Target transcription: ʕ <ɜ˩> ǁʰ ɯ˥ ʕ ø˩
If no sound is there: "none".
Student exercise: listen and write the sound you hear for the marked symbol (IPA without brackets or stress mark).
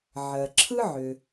ɜ˩